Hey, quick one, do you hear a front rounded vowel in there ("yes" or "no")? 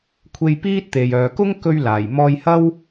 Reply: yes